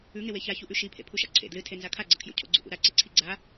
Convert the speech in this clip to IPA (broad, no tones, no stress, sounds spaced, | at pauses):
ʉ ŋ e w e ç a ç u ʔ ʉ ʃ i pʰ ḛ pʰ u ʃ a̰ ǀʰ ḛ d l ɨ tʰ e n z a kʰ a ɡ͡ǀ ɐ kʰ j o̰ cʰ o̰ ɡ͡ǀ ṵ ʔ ṵ ɾ a ǀ e ǀʰ i ɡ͡ǀ a